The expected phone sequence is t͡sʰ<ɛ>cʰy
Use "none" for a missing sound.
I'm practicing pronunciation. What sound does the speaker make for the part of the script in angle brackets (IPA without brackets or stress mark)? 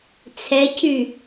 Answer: ɛ